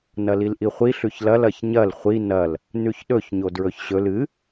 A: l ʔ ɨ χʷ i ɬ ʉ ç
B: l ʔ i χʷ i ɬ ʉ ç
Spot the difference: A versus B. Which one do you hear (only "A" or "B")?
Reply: B